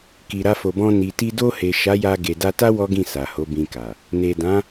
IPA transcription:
k i˨ ɾ a˧ f o˨ b ɔ̃˧ n i˨ t i˧ d o˧ h e˨ ʃ a˨˦ j a˧ ɡ e˨ d a˧ t a˦ w ɔ˦ ɡ ĩ˦˨ s a˨ h o˨˦ b ĩ˧ k a˨ | n e˨ d ã˨˦

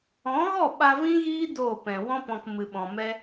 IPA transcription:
ɔ̃˨˦ ɣ ɔ˦˨ ɓ a˧ v ĩ˦ ɣ iː˦ d oː˦˨ p ɛ̃˨ w ɔ̃˦ p ɔ̃˧ k m ɨ˨ ɓ ɔ̃˨ m ɛ˦

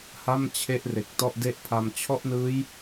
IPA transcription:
h a˥˩ m t͡ɕʰ e˦˥ ʔ r e˨˩ k̚ t ɔ˥˩ ʔ d e˥˩ ʔ pʰ a˧ m t͡ɕʰ ɔ˥˩ ʔ n ɯː˦˥ j

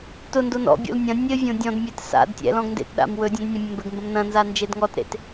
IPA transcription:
t ʊ n d o n ɔ̰ bʲ o̰ l nʲ ɐ̃ nʲ ɘ vʲ õ dʲ ɔ̃ d mʲ e t s a̰ d tʲ ɛ̰ l ɔ̃ ɡ n d ḛ t ɗ a̰ m w ɵ dʲ ɐ̃ d nʲ ɐ̃ mʲ ɐ̃ m b ɘ ɡ m b ɐ̃ m n ɐ̃ n z a n d͡ʒ e d ŋ ɔ t ɾ ḛ t

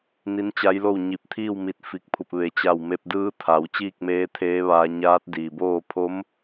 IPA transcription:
n i˧˥ n t͡ɕ a˧˥ j l o˥˨ w ɲ i˧˩ p̚ t̪ʰ iː˥˨ w m i˧˩ t̚ f i˧˩ k̚ pʰ u˧˩ p̚ ʋ e˩˧ t͡ɕ a˧˩ w m e˧ p̚ d ɯː˧˥ t̪ʰ a˩˧ w t͡ɕ iː˥˨ k̚ m eː˧˥ t̪ʰ eː˧˥ ʋ aː˧ ɲ aː˧˥ t̚ d iː˩ b oː˥˨ pʰ o˧˥ m

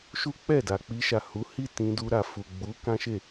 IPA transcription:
ʃ u˦ k͡p ɛ˦˨ d a˨ k͡p i˧ ʃ a˨ h u˨˦ h i˦˨ t ĩ˧ d u˧ ɾ a˨ f u˨ ɡ͡b u˨˦ k ã˦ ʃ e˦˨

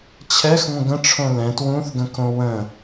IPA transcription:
t͡ɕʰ ɛ x ŋʷ ə̃ ɡ ə̃ ʈ͡ʂʰ õ l ɛ̃ t w ũ θ ɡ ə̃ k õ w ə̃

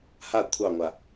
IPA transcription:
h a kʷʰ ɑ ŋʷ a

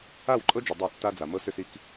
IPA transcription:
a˦˨ w ǃʼ ɤ˦ d͡ʒ ʏ˨ dˤ œ˦˨ tː a˦ d͡z a˨ m ɤ˦ s ʏ˦ s i˦ k

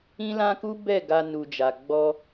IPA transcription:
ĩ˦ l ã˦ k u˦ b ɛ˦˨ ɡ a˧ n u˨ d͡ʒ a˨ ɡ͡b ɔ˧

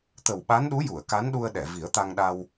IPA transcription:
t̪ ə˨˩ w ɓ a˧˥ n ɗ u˧˥ j u˨˩˨ ə̯ k a˧˥ n ɗ u˧ ə̯ ɗ ɛ˨˩˨ v i˨˩˦ ə̯ t̪ a˧ ŋ ɗ a˧ w

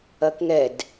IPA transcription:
ɐ k ŋ ɛ d

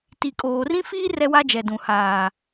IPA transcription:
t i˨ kʼ oː˨ r ĩ˦ f iː˦ r ɛ˦ w a˦ d͡ʒ ɛ˨ d ũ˨ h aː˨

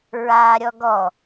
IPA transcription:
ɹ aː ɾʲ ɔ ɡ ɔ

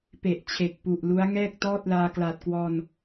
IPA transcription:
p e˨˩ ʔ t͡ɕʰ e˨˩ k̚ p u˨˩ ʔ l u˦˥ a̯ ŋ ɛː˥˩ k̚ t ɔː˥˩ t̚ l aː˧ k l aː˨˩ t̚ k w ɔː˧ n

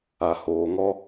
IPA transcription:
a˨ h oː˨ ŋ ɔ˦

